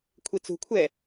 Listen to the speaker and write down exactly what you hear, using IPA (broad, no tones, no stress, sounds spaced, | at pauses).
kʷʰ i t͡s ṳ kʷʰ ɛ